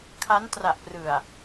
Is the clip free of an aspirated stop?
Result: no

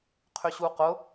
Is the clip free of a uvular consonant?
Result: no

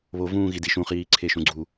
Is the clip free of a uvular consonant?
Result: no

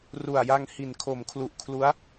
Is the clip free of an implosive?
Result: yes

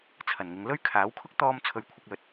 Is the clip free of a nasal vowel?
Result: yes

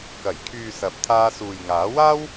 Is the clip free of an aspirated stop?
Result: no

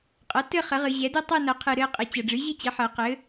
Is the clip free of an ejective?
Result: no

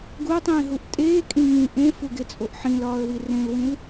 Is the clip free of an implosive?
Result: yes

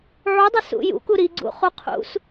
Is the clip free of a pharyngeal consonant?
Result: no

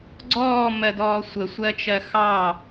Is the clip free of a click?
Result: no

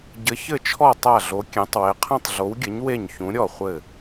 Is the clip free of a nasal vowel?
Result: no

